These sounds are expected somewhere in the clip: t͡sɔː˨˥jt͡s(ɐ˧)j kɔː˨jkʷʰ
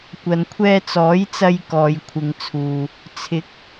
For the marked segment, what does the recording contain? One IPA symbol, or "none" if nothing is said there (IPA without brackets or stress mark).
ɐ˧